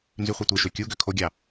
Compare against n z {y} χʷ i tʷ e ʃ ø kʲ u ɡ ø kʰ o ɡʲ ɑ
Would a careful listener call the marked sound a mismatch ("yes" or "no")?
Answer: no